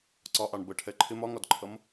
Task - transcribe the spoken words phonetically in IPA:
ǀ ɒ ʔ ɑ ɳ b ə ʈʰ ɛ ǃʰ ɪ m ɒ ŋ ɒ d ǃʰ ʌ m

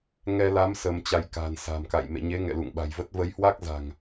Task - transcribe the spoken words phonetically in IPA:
ŋ ɛ˧ l a˨˦ m s ə˧ m t͡ɕ a˧ j k a̤˨˩ n s a̤˨˩ m k a̰˧˨ j m ḛ˧˨ ɲ e˨˦ ŋ ɛ̰˧˨ l ṵ˧˨ ŋ ɓ a̤˨˩ j v ə˦˥ t̚ v ə˨˦ j h w a˦˥ k̚ z a̤˨˩ ŋ

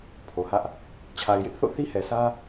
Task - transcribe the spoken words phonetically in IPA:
pʰ o˨ h ä˦ ʔ | t͡ɕʰ a˨ ɪ̯ j ɪ˦ ʔ θ o̰˦˨ θ i˦ h ɛ˨ s ä˦

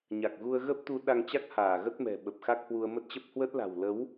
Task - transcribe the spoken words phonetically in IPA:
ɲ a˨˩ k̚ ɣ u˧ ə̯ ɣ ə˦˥ p̚ t̪ u˨˦ ɗ a˧ ŋ t͡ɕ a˦˥ k̚ h aː˧˩ ɣ ə˦˥ t̚ m ɛ̤˨˩ ɓ ə˨˩ p̚ x a˦˥ k̚ h w u˧ ə̯ m ə˦˥ t̚ t͡ɕ ə˦˥ p̚ h w ə˦˥ t̚ l a̤˨˩ w l ə˨˦ w

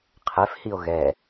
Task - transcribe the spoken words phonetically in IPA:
qʰ ɛ f h i o̯ ɣ ɛ

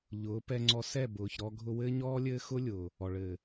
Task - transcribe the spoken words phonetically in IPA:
ʎ ʊː˨˦ p ɛ˧ ŋ͡ǀ ɔ˧ s ɛ˦˨ b ʊː˨ ç ɾ ɔ˧ ɡʱ ʊ˧ w ɘː˦ ɲ ɔː˦ lʲ ɘː˦ x ʊ˦ lʲ ʊː˨ | ɔ˨ ɭ ɘː˨

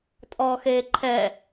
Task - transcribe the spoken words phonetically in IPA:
tʼ ɔ x e ǃʰ ɛ

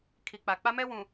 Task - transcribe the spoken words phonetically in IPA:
kʰ i˨ k͡p a˨ k͡p a˦ m ɛ˦ w ũ˨

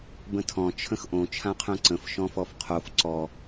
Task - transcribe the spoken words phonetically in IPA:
b ə̃ tʰ ɔ̃ t͡ʃʰ ə̃ x ʔ õ t͡ʃʰ ã qʰ œ̃ ǀ ə̃ f ʃ ɔ̃ f ɔ f qʰ o f ǀ ɔ

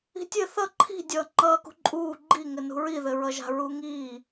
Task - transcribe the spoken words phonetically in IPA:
i̤ tʲ ɘ θ ʌ ǃʰ i̤ dʲ ʌː ŋ͡ǃ ʌː k ṳ ǃʼ uː ɡ͡ǃ i ŋ ɘ n ṳ ɹ i ð ɘ ɹ ʌ ʒ a̤ ɹ u ŋ iː

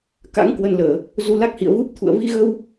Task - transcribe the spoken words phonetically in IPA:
k a̰˧˥ ŋ k w ə˧ n l əː˧˩˨ | z u˧ l a˦˥ k̚ h ḭ˧˨ ə̯ v u˦˥ p̚ t̪ʰ ṵ˧˨ ə̯ v i˧ ɣ ə˧ w

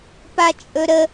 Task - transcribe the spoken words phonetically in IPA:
p a t͡ʃʼ ɵ ɾ ə

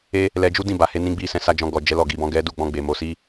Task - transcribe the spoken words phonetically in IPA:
e˦ | l ɛ˧ d͡ʒ u˦ d ĩ˦˨ b a˧ h e˦ n ĩ˧ ɡ͡b i˧ s ɛ̃˧ s a˧ d͡ʒ ɔ̃˧ ɡ ɔ˨ d͡ʒ ɛ˨˦ l ɔ˦˨ ɡ i˨˦ b ɔ̃˦ ɡ ɛ˦ d u˦˨ ɡ͡b ɔ̃˧ ɡ͡b e˨ m o˨˦ s i˦

